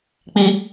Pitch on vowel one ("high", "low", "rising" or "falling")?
high